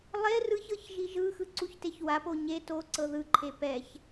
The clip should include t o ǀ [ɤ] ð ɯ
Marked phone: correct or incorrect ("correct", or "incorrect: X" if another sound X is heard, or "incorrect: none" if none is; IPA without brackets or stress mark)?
correct